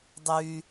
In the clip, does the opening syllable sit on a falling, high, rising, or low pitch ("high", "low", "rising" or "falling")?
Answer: low